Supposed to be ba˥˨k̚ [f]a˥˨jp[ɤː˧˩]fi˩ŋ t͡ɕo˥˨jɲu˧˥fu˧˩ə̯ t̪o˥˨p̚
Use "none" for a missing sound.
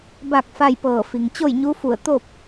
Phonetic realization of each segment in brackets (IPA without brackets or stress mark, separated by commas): f, ɤː˧˩